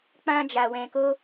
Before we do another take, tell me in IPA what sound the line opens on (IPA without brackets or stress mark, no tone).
k͡p